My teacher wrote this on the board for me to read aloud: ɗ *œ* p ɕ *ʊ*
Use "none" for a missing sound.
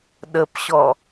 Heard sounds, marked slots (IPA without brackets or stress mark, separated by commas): ə, ɔ